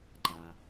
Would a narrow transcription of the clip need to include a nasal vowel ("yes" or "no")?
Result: no